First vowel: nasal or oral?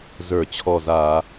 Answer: oral